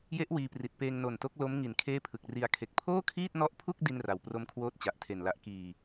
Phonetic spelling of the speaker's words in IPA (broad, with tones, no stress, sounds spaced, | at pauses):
j e˦˥ ʔ w iː˧ p r i˨˩ t̚ p eː˧ ŋ n o˨˩ n t o˦˥ k̚ l o˦˥ m ŋ i˨˩ n kʰ eː˥˩ pʰ ɯ˨˩ k̚ r i˧ a̯ kʰ e˨˩ k̚ pʰ oː˥˩ kʰ iː˥˩ t̚ n ɔ˦˥ ʔ pʰ u˥˩ k̚ d i˥˩ n r a˨˩ w p r o˦˥ m kʰ w oː˦˥ t̚ t͡ɕ a˨˩ ʔ tʰ e˨˩ n l a˦˥ ʔ k iː˨˩